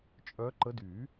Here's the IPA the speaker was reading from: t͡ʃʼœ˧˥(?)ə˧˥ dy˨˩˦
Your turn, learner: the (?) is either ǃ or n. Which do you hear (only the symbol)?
ǃ